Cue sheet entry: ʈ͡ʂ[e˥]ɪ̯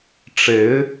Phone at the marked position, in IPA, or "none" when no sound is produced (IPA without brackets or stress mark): e˧˥